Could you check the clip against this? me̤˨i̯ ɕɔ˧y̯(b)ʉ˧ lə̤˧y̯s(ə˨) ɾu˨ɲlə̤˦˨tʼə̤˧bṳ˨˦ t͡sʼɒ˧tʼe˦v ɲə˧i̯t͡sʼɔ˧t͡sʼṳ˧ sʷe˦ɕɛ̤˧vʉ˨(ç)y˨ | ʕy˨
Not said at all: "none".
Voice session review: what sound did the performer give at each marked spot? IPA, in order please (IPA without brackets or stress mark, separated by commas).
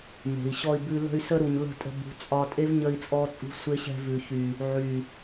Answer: b, ə˧, ç